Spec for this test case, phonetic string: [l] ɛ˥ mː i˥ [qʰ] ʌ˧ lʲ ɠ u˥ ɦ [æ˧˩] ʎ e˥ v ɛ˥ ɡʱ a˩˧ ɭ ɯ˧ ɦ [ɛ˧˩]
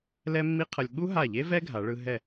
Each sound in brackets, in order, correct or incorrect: correct, correct, incorrect, correct

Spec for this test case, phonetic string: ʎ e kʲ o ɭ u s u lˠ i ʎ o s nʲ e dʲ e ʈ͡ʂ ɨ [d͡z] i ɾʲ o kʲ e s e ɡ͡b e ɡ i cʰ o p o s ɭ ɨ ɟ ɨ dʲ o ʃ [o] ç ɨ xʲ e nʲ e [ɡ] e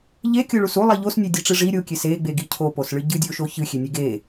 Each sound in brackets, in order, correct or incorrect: incorrect, correct, correct

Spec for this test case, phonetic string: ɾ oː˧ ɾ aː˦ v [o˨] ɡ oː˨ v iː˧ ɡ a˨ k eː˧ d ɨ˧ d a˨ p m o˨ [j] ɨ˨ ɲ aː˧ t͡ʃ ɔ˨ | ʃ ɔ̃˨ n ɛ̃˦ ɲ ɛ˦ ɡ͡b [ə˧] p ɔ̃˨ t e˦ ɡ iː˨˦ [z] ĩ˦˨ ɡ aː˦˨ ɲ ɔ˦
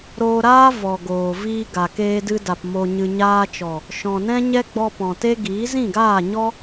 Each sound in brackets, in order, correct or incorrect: incorrect, incorrect, incorrect, correct

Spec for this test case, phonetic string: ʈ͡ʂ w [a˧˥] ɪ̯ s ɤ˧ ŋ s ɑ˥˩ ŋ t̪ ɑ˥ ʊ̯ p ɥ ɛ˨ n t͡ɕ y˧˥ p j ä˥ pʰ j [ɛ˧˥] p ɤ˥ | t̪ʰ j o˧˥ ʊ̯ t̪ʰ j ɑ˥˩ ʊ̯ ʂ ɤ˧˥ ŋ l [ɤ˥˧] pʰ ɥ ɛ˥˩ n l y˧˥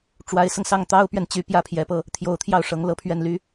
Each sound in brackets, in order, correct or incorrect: correct, correct, correct

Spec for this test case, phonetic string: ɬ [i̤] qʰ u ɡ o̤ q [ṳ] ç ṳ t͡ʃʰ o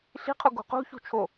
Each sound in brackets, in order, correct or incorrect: correct, correct

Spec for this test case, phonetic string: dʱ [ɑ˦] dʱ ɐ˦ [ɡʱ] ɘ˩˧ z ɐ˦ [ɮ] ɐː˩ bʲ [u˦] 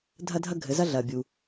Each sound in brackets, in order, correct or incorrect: incorrect, correct, correct, incorrect

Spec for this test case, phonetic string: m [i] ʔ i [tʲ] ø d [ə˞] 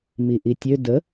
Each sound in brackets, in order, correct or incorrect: correct, correct, incorrect

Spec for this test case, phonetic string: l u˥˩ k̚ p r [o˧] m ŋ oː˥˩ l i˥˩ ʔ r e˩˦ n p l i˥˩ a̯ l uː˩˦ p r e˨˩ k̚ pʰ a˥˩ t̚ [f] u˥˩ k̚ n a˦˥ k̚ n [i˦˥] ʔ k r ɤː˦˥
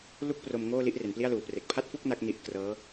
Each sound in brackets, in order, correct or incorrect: correct, correct, correct

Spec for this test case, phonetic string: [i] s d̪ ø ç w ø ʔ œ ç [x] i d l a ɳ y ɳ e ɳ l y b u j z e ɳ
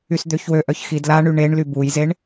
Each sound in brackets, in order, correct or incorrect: incorrect, correct

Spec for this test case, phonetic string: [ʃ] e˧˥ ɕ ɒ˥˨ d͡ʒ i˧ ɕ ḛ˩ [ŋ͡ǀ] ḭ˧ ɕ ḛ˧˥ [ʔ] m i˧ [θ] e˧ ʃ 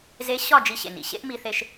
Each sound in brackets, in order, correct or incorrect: incorrect, incorrect, correct, correct

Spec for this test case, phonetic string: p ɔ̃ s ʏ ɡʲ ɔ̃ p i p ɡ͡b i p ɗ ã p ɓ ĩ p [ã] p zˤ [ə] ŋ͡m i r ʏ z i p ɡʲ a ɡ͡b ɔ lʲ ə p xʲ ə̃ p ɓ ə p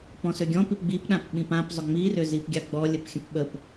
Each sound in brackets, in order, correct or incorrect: correct, incorrect

